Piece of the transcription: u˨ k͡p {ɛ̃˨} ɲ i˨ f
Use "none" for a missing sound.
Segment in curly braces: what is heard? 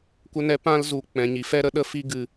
ɛ̃˨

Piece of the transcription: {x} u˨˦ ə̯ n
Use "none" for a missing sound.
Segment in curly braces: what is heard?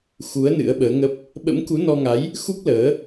x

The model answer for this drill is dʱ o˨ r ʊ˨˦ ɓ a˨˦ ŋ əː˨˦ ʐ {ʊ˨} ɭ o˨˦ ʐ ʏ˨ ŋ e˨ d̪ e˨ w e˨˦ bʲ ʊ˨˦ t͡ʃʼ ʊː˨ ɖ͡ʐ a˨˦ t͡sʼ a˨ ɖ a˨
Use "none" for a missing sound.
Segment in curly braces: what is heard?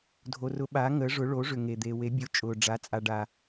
ʊ˨˦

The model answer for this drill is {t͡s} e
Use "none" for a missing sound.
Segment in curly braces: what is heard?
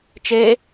t͡ʃ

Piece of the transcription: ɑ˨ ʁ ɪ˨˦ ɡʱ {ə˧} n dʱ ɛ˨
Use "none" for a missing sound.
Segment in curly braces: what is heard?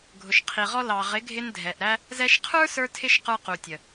ɪ˧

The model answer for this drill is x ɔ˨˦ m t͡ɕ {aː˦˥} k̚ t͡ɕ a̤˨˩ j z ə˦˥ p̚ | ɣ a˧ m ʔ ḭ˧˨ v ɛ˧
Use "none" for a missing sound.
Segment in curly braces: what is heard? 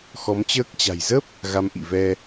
əː˦˥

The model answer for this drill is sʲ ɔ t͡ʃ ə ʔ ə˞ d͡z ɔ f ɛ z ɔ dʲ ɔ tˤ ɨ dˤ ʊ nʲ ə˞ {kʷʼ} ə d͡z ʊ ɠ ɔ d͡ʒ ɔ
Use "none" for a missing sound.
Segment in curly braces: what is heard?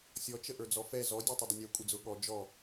kʷʼ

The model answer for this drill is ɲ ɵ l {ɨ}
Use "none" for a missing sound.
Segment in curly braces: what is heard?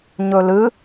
ɨ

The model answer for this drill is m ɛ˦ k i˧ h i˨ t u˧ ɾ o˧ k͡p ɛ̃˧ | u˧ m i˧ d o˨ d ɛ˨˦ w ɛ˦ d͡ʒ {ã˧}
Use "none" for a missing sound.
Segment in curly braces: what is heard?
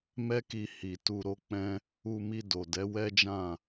ã˦˨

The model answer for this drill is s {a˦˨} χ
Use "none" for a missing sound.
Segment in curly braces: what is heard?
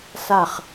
a˦˨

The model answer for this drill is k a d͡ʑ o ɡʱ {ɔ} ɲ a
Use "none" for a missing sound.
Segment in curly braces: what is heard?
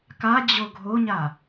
o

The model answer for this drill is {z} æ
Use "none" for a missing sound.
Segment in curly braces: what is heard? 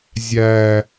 zʲ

